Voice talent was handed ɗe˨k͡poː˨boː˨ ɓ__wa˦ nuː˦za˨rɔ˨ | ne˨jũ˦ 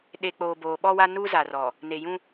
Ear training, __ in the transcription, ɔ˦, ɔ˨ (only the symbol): ɔ˦